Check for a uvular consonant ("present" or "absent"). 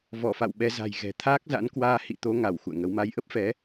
absent